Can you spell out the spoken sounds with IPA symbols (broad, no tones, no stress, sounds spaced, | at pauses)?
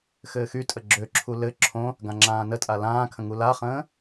x ɘː x y tʼ ə ɡ͡ǁ ø ǁʰ u l ɘ ǁʰ õ | ɡ ã ŋ͡ǁ ãː n ə tʼ a l ãː kʰ ə̃ ŋ u l a χ ə̃ː